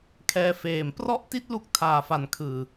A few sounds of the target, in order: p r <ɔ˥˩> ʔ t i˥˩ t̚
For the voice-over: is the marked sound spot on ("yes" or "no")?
yes